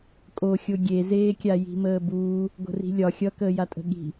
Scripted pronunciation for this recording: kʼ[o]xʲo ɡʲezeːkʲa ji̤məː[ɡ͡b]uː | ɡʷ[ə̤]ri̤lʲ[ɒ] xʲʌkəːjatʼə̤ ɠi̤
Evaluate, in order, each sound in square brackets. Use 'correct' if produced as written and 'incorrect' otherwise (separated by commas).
correct, incorrect, correct, correct